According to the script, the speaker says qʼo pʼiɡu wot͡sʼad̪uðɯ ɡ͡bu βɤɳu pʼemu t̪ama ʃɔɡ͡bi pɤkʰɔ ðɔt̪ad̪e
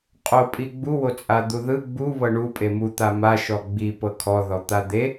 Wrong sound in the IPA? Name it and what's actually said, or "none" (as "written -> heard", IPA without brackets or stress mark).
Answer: ɡ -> ɡ͡b